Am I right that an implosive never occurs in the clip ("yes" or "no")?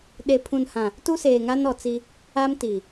no